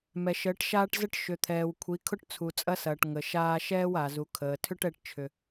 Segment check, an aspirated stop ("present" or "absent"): present